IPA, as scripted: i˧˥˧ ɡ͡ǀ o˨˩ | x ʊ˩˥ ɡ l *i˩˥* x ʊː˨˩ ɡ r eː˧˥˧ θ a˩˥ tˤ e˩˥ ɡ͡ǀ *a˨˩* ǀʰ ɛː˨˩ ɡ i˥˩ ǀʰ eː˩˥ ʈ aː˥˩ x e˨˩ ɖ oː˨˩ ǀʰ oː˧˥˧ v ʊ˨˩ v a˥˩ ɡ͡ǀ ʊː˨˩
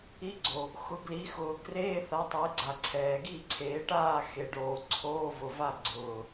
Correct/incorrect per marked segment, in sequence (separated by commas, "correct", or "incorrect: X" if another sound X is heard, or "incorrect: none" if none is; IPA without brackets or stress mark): correct, correct